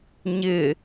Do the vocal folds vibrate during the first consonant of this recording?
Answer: yes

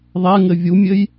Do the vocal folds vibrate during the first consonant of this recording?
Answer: yes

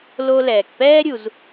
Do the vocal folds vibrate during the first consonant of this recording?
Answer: yes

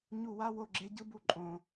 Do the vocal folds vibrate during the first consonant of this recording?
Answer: yes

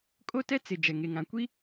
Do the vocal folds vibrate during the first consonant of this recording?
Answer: no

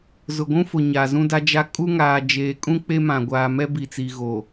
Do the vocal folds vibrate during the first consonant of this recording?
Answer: yes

